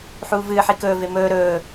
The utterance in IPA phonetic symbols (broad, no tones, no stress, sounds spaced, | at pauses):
ħ uː v ɨː ħ i k ɵː v e m ɵː ɾ ɵː